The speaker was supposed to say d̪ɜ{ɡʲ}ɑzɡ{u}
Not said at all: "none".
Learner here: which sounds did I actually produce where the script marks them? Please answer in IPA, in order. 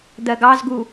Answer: ɡ, u

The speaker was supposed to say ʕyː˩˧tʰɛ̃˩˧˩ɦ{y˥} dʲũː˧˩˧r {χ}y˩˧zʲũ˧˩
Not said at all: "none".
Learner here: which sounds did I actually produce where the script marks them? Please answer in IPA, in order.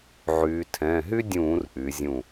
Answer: y˥, ʔ

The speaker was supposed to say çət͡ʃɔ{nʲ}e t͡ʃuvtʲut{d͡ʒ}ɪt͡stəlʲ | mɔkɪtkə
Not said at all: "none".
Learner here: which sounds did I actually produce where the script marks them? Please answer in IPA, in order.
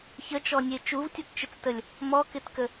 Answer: nʲ, t͡ʃ

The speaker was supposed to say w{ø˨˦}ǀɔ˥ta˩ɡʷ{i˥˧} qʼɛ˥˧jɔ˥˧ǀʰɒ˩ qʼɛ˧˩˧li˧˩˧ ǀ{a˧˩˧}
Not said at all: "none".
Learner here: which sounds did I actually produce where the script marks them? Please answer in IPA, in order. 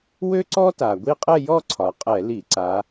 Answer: ø˥, i˥˧, a˨˦

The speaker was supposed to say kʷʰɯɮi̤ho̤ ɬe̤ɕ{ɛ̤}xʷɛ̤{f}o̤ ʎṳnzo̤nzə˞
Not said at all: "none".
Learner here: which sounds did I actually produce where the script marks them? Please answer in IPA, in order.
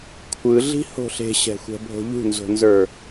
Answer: ɛ̤, bʱ

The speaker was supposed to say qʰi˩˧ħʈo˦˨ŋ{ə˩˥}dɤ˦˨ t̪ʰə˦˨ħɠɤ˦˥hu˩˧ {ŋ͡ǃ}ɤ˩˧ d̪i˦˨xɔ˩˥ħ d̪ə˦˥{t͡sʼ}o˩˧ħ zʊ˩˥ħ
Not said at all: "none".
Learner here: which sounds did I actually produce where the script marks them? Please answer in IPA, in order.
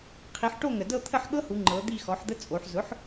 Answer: ə˩, ŋ͡ǃ, t͡sʼ

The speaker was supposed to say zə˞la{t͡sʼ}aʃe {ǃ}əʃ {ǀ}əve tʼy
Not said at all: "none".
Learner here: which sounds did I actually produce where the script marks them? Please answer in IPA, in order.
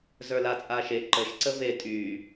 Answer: t͡sʼ, ǃ, ǀ

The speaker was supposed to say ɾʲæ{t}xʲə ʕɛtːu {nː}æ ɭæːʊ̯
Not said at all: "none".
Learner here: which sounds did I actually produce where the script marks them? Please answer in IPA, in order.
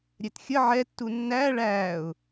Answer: t, nː

